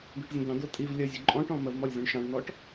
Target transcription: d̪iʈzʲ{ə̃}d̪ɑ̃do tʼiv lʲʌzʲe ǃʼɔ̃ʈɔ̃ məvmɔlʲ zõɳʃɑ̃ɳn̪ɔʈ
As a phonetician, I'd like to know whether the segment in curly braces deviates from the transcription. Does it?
no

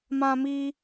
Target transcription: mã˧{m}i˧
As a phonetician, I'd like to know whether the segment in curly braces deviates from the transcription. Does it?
no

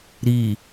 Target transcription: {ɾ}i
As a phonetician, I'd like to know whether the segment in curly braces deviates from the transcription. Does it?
no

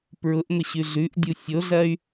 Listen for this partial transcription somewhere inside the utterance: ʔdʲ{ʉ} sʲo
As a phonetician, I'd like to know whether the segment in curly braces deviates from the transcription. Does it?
yes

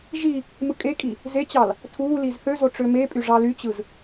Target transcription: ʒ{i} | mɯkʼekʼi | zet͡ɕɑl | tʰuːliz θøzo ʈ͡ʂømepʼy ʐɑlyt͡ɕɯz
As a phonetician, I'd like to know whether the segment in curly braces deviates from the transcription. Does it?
no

